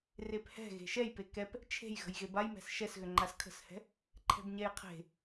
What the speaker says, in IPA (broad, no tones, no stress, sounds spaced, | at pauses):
r e p h ɛ̤ ɣ e̤ ʃ ɛ j p e k ɛ p | t͡ʃʰ e̤ j ɣ ə̤ j ɣ e b a j m ɛ̤ s ʃ ɛ s ɣ ʏ ŋ͡ǃ a s kʰ ə̤ s h ɛ̤ | ǃʰ ɛ̤ b ɲ ɛ j qʰ e̤